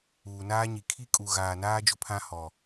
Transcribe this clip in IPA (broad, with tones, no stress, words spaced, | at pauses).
uː˨naː˦ɲi˨ kʰi˦kʼu˨ ɣaː˨naː˦ d͡ʒʊ˦pʰã˦hɔ˨